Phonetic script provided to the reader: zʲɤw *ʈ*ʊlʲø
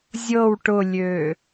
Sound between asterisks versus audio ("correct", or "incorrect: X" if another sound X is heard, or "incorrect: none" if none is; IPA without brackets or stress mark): correct